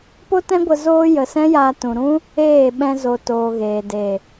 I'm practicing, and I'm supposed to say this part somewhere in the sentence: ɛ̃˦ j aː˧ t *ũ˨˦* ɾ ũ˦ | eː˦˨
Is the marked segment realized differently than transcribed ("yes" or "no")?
yes